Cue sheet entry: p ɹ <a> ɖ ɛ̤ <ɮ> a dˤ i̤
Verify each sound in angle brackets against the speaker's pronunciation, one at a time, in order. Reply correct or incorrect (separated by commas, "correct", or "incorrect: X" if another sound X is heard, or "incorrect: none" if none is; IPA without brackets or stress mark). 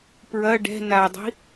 incorrect: ɐ, incorrect: n